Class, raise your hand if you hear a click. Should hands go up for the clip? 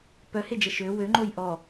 yes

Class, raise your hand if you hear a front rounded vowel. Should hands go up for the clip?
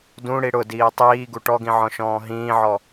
no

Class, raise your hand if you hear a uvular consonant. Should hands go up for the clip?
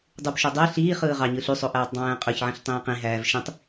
yes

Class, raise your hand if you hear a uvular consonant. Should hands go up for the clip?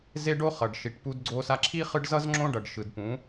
yes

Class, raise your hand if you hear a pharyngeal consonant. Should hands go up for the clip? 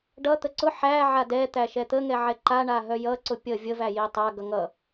yes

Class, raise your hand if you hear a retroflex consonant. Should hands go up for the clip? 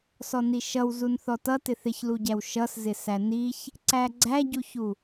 no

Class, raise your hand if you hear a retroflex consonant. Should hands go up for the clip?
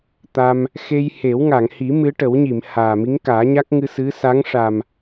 yes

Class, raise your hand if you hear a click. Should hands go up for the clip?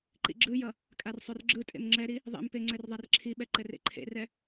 yes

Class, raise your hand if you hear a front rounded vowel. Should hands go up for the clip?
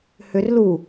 yes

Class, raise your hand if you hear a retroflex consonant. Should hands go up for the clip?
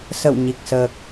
no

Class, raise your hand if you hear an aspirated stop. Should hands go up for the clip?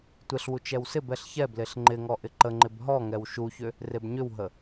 no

